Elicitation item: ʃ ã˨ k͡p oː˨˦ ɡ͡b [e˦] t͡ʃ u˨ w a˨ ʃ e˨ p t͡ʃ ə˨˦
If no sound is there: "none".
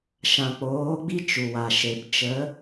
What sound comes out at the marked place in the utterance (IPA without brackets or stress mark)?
i˦